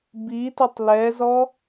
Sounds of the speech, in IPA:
b i t ɵ tˤ l ɛ z ɔ

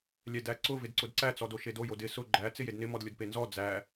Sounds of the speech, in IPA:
lʲ ɛ d æ ǀ ʊ v ɪ d ǀ ʊ d ǀ æ t͡s ɔ d o ʃ e d o j o d ɪ s ʊ ɡ͡ǃ æ t͡s ɪ j e d n ɪ m ɔ d lʲ ʊ d p e n z ɔ d͡z æ

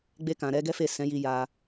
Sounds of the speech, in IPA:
ɡ͡b e˧ k ã˨ ɾ ɛ˨˦ ɡ ɛ˦ f e˦˨ s ɛ̃˨˦ j i˧ j a˧

